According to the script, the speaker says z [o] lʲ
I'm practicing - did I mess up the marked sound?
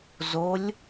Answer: no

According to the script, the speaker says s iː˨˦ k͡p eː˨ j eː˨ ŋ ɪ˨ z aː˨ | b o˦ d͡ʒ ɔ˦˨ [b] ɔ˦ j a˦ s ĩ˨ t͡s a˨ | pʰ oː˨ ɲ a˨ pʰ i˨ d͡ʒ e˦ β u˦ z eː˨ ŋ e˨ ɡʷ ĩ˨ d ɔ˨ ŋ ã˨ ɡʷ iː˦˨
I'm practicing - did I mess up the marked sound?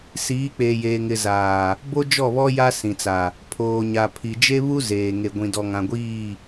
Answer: yes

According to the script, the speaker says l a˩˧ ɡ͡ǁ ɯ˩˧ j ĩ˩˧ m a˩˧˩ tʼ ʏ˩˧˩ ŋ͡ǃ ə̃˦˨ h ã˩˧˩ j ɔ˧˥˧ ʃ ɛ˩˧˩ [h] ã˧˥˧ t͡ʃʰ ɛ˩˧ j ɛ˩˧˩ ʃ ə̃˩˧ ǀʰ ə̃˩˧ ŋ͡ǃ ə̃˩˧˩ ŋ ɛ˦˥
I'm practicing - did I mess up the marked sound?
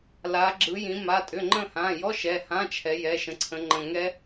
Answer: no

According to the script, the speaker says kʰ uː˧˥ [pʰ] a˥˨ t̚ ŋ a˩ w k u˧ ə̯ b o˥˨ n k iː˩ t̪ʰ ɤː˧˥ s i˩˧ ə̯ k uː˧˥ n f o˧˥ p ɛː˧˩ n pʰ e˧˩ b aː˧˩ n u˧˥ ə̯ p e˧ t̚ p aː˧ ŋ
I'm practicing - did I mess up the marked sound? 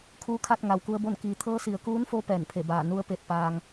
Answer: yes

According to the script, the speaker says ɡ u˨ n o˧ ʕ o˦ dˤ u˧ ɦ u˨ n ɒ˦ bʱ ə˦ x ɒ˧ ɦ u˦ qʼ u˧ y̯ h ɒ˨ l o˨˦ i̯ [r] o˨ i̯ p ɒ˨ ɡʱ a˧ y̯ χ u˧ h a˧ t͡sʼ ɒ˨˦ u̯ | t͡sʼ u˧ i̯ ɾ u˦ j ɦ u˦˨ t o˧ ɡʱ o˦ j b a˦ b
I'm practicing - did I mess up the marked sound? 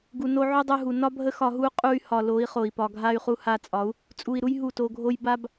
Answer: yes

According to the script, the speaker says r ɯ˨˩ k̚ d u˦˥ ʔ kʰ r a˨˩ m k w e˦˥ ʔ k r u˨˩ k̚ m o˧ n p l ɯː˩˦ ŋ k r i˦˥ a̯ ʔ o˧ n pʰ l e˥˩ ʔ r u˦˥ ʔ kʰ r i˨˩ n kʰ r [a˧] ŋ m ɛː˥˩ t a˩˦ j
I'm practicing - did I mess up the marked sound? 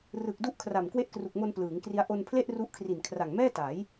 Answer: yes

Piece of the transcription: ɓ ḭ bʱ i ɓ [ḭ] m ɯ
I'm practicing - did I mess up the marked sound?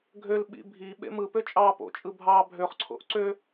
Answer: yes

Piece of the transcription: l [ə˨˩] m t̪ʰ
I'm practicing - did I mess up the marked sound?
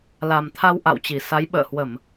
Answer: yes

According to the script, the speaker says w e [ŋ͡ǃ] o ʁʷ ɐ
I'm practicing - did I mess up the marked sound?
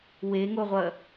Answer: yes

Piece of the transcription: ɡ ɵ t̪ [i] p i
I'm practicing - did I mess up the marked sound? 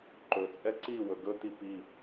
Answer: no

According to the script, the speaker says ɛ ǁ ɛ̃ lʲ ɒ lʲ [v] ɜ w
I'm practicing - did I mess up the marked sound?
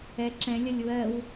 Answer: yes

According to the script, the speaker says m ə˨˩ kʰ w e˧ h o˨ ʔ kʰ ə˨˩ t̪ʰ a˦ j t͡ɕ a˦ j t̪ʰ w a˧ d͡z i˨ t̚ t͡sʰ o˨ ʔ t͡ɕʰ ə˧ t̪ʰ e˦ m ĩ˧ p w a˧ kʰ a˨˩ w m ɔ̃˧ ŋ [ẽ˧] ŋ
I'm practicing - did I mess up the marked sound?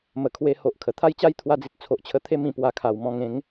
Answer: yes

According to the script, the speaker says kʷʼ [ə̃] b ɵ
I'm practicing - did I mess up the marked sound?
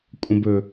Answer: no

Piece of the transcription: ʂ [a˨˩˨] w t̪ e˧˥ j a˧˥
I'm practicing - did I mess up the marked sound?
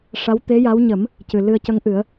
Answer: yes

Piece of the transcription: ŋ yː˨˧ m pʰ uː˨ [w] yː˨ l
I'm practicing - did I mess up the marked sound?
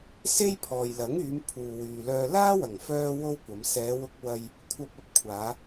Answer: no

